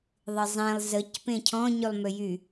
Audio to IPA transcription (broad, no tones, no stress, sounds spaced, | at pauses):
ðˤ ɪ zˤ ẽ lˠ z ə c p ẽ cʰ ɔ̃ ɲ y lˠ m ʏ j y